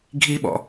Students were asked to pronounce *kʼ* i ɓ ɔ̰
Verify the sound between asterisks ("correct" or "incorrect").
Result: incorrect